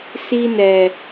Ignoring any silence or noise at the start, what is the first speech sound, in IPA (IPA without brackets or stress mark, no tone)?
s